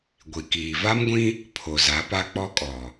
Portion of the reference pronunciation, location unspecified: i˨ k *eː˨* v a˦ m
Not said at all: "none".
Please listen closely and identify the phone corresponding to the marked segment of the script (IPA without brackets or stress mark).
iː˨